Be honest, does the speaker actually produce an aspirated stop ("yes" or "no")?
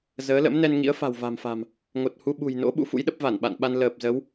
no